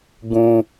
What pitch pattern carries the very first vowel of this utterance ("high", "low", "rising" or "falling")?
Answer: high